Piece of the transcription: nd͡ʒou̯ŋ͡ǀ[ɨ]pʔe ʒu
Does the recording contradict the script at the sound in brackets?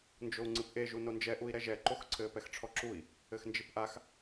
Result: no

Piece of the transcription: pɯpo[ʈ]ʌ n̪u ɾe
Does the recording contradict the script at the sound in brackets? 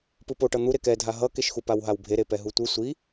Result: no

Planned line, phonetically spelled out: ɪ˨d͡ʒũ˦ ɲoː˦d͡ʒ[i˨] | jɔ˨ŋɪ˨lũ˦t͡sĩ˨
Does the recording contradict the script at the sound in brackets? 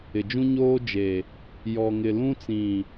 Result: yes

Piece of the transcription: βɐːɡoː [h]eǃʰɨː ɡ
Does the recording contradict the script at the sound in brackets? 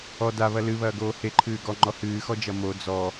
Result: no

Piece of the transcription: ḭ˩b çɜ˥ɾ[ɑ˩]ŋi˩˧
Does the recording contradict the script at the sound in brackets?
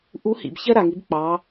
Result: yes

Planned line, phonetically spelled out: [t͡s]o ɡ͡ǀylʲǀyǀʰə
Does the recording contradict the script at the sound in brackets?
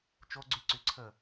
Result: yes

